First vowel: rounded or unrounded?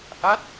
unrounded